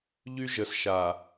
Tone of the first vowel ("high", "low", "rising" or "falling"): high